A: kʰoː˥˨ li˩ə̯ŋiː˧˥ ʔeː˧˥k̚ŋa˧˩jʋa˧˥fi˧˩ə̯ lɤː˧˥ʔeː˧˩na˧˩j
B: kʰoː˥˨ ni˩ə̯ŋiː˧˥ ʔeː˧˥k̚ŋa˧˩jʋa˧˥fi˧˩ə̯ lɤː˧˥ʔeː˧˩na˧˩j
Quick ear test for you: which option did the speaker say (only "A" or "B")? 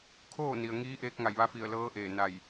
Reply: B